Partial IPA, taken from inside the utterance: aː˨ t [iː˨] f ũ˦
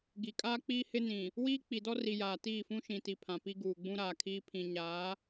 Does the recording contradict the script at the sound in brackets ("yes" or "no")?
yes